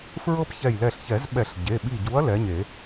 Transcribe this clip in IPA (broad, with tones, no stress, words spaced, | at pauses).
fɹɤ˦pçɛ˧˩jlɛ˧˩ɬçɛ˨˩˦z ɓɛ˨˩˦ɬɟe˩˧˩ɓi˧˩ɟu˨˥ɐ̯ lɛ˨˥ɲe˨˩˦